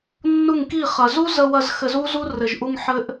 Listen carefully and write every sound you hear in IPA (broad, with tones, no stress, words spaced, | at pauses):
nːu˦˨ŋki˦˨ χɐ˨zu˦zə˧wɐ˧z xɘ˧zu˦zu˦ rɘ˨ʒ ʔu˧ŋ ħɘ˦ʔ